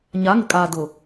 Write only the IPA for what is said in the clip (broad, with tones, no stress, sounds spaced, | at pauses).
ɲ a˨˦ ŋ ɪ˨ kʼ aː˨ d ʊ˨